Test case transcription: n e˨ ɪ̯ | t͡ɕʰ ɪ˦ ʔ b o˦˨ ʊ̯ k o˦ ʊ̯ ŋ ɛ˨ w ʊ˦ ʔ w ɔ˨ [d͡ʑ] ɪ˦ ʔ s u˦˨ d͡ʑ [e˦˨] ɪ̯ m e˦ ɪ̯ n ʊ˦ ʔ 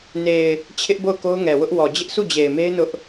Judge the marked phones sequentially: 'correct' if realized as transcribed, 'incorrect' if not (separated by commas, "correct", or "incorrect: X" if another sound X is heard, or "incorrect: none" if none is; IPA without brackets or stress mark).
correct, incorrect: e˨